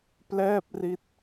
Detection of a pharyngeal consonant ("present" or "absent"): absent